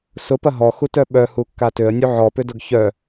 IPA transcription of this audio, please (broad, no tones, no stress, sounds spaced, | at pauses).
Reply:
s ʊ p ɐ ɦ ɔ x u t œ ɓ œ h u kː a t ø ə̯ nʲ u ʕ ɔ p ʏ d ʊ ɡ ç œ